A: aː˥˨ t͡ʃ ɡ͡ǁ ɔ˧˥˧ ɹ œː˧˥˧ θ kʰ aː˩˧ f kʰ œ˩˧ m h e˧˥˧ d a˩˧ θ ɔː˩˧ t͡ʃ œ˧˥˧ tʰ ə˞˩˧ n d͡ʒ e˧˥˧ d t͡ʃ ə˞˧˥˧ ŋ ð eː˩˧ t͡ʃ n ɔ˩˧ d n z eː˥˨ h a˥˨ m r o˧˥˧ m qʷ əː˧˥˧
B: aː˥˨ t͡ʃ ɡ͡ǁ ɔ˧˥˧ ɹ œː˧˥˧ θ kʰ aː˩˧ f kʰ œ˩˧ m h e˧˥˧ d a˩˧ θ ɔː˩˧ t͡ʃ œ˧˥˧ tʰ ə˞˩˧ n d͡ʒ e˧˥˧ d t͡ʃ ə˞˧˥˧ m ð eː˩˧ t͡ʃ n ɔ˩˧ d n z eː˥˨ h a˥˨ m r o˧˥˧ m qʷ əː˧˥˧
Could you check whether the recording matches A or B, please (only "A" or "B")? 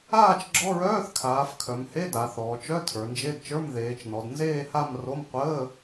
B